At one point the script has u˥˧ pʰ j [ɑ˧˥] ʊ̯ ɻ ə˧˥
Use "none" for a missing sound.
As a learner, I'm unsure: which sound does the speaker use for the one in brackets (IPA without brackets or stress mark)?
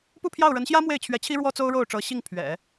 ɑ˥˩